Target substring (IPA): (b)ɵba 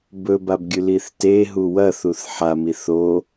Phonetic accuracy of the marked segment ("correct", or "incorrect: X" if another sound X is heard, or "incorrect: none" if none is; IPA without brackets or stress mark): correct